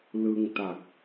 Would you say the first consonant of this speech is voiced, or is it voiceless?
voiced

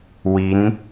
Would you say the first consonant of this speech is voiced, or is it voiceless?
voiced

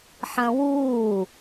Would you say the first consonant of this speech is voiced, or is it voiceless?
voiceless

